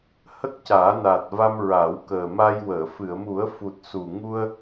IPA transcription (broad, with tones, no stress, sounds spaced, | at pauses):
h ə˦˥ k̚ c aː˨˩˦ n aː˨˩ t̚ v a˧ m ɹ a˨˩˦ w k əː˨˩ m a˧ j w əː˨˩˨ f ɨ˨˩˨ ə̯ m u˨˩˦ ə̯ f u˨˩ t̚ s u˨˩ ŋ u˧ ə̯